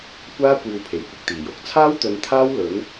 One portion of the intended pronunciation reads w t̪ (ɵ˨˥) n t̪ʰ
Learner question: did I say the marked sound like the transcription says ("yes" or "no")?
no